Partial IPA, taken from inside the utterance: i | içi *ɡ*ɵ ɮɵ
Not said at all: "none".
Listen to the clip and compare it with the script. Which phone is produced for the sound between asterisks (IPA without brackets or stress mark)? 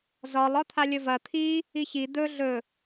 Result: d̪